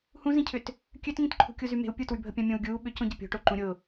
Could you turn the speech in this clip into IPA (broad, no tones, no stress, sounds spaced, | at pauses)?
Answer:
h ũ z ĩ cʰ ʏ t | kʲ ø t ŋ ĩ t ǃʰ ṳ kʲ u z y m e̤ u̯ pʲ u t w y bʱ ə pʲ ã mʲ õ u̯ ɡʲ uː ɓ ʏ c õ ɟ ə pʲ o̤ ʈ o ǃ ũ ɾʲ ʊ